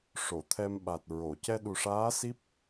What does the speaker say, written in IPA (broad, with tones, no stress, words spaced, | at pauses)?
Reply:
ʂo˨˩˨t̪ʰɛ˧mɓa˨˩t̚ ɹo˨˩˨ cɛ˧ɗu˨˩ʂaː˧˥ si˦˥p̚